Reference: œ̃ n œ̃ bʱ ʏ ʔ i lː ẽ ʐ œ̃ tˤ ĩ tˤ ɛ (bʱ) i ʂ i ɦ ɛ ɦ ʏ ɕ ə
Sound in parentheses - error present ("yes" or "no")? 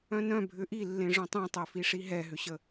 yes